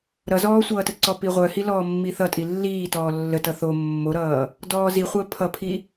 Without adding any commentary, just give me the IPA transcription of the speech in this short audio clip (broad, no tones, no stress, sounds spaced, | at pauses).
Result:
ɾ ʌ z ɔː sʷ ʌː t ə ǀ ɔ p i ʁʷ œ h i l ɔː mː i θ ʌ tʼ i lː iː t ɔː lː ə t ʌ θ o mː o ɾ ʌː | d ɔː z i χʷ əː pʰ ʌ pʰ i